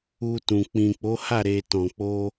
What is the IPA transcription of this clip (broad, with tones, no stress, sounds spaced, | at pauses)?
u˧ t ũ˨ k͡p ĩ˨ k͡p o˨˦ h a˦˨ ɾ e˧ t ɔ̃˨ k͡p o˧